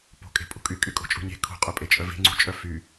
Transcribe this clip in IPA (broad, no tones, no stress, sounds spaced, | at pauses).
p o̤ kʼ e̤ pʼ ṳ kʼ y kʼ y kʼ o̤ t͡ʃʼ ṳ ɲ e̤ kʰ ṳ qʼ œ pʼ e t͡ʃʼ œ v e̤ ŋ͡ǀ ṳ t͡ʃʼ œ f y